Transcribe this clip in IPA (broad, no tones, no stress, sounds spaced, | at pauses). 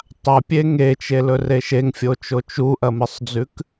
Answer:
tˤ a pʲ e ŋ e t͡ʃ e l ɵ r e ʃ e ŋ fʲ o t͡ʃ o t͡ʃ u ʔ ɐ m ɨ sˤ d͡z ʉ k